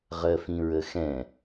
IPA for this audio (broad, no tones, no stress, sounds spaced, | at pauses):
ʁ ɜ f ĩ ɹ ə x ɛ̃